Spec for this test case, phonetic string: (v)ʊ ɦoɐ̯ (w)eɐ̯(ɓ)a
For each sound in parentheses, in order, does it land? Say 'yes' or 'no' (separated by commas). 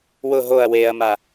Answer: no, yes, no